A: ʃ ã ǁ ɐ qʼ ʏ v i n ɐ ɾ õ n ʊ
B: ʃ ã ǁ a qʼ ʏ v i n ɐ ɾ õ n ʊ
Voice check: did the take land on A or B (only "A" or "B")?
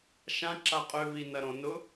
B